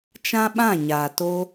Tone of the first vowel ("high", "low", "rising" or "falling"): high